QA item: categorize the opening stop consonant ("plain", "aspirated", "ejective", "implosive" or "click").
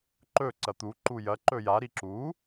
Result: click